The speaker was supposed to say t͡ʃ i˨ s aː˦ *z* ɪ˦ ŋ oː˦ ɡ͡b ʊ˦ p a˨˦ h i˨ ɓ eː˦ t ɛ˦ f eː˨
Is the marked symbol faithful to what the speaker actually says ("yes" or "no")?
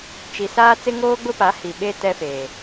no